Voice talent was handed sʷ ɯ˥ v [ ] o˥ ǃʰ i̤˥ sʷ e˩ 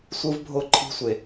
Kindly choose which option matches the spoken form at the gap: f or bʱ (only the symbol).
bʱ